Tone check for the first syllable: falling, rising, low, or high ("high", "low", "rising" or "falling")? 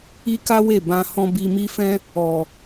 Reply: high